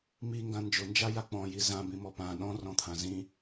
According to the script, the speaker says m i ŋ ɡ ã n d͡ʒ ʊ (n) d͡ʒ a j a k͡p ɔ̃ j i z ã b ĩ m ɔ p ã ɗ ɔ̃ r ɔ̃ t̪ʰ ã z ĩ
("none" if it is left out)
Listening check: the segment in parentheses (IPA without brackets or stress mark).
n